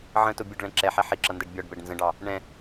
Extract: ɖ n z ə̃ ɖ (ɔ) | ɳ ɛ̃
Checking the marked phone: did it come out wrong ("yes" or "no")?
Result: yes